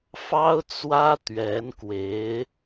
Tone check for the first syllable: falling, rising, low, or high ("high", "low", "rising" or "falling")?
high